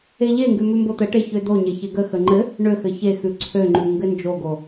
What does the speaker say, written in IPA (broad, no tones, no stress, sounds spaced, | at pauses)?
e ʎ e ŋ ɡ ʉ m ʉ m b o t̪ ə ʈ e ç ø d̪ o ɲ e ç e ɡ ə x ə ŋ͡ǃ ɘ | ɳ ø x ɘ ç e x ʉ ǀʰ ø ŋ͡ǃ ʉ ŋ ɡ ɘ n d͡ʒ o ɡ o